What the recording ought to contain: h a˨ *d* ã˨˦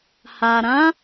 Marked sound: incorrect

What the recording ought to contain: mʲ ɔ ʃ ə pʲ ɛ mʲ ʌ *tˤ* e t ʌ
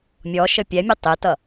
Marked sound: correct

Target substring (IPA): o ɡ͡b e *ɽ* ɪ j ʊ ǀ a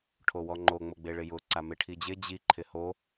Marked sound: incorrect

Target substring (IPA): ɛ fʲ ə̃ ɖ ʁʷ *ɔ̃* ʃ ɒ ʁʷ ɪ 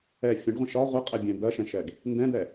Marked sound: incorrect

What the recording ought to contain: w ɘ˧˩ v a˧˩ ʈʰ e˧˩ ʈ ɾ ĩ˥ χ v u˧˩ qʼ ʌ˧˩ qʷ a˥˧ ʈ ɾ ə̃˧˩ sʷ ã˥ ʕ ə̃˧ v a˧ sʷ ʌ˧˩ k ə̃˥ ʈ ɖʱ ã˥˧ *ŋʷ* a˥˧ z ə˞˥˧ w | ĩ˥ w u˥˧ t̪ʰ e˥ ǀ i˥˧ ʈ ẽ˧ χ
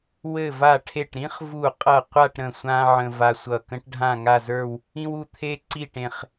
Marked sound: incorrect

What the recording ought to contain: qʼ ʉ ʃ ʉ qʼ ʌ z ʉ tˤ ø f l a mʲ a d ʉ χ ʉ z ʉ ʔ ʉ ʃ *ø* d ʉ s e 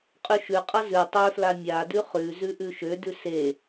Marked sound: correct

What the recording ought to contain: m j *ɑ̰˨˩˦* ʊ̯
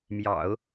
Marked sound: correct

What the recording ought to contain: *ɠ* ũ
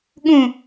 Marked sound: correct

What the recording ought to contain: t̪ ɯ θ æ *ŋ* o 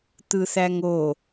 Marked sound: correct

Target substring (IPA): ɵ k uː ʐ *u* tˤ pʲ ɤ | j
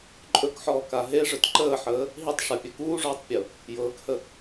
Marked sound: incorrect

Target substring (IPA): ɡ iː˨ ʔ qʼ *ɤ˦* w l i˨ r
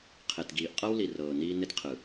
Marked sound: correct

